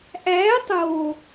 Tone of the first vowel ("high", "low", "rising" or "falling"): rising